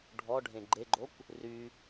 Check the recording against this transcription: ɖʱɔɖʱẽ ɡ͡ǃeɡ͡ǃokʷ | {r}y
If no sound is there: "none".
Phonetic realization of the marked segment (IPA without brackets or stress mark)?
r